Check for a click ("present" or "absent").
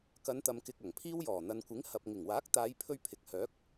absent